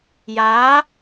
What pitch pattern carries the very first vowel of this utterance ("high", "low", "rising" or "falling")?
rising